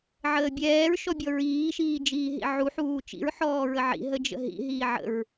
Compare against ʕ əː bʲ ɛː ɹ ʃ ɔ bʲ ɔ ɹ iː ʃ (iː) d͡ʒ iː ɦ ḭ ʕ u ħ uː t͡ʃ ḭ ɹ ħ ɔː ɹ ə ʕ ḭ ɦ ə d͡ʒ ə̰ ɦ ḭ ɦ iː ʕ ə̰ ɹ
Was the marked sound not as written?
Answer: no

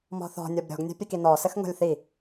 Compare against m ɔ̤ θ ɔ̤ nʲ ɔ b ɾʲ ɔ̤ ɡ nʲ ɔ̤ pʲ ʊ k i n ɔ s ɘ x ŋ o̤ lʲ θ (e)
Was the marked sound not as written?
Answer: yes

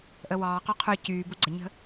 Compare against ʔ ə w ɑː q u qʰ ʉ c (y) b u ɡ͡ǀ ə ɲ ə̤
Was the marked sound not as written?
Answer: yes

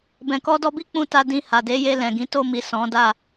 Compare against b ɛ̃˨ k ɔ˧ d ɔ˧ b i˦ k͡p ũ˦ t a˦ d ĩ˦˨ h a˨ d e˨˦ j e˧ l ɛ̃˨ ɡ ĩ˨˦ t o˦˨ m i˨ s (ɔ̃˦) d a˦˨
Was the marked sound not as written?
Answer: yes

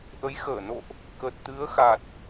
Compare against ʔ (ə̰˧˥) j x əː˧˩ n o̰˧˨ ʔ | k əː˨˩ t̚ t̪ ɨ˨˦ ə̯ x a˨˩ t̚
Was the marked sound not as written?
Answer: yes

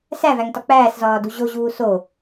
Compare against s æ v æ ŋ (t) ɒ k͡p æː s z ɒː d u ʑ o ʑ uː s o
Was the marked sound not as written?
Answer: no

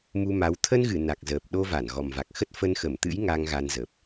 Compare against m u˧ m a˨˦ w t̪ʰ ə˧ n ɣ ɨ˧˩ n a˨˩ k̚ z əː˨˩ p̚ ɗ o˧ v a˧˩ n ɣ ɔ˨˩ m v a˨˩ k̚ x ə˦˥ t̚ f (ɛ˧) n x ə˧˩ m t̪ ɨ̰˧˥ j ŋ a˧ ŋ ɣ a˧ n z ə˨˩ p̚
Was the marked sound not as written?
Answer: yes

